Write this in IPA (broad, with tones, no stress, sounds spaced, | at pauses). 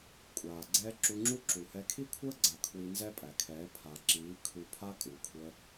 kʷʼ aː˨ ɡ͡ǀ ɛː˦ ǁ u˧ ŋ͡ǁ u˦ ǁ u˨ h ɛ˧ kʰ i˦ kʷʰ əː˦ ɡ͡ǀ a˨ kʰ w i˧ n z ɛ˦ pʼ æ˨ kʰ ɛː˨˦ pʰ a˨ ǁ iː˨˦ kʰ u˧ pʰ a˦ kʼ u˨ kʷʰ ə˧